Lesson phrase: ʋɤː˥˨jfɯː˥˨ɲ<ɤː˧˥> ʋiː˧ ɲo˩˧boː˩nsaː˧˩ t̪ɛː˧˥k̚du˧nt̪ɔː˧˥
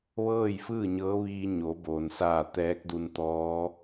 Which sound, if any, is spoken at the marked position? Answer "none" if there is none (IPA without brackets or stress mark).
ɤː˧˥